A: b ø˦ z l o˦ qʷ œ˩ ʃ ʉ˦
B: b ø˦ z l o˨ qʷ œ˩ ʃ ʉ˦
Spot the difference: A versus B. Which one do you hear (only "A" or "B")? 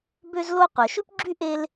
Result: A